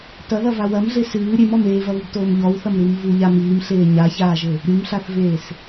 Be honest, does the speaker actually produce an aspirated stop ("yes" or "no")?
no